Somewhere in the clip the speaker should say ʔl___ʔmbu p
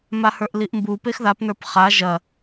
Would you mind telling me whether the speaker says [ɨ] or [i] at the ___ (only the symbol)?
i